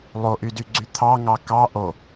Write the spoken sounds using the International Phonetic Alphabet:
lˠoʔydyɡ͡ǀy t̪ʰɑŋɑ kɑ ʔo

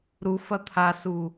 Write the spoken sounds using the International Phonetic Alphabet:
ɾufɐ t̪ʰasu

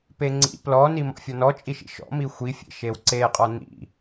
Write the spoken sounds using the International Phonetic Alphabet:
peŋ͡ǀḭ plɔ nimɔ̰fʲɔnɔ t͡ʃʼiʃḭʃɔ̰ mixʷifʲḛ ʃewǀeqʼɔ nḭ

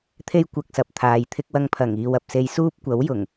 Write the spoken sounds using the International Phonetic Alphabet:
t̪ʰe˥j kʷɐ˧k̚sɐ˨p̚t̪ʰaː˨j t̪ʰɪ˧k̚wɐ˧ŋpʰɐ˨˩ŋ iː˨wɐ˨p̚se˧jsuː˥p̚ kʷɐ˨˥wjʊ˨˩ŋ

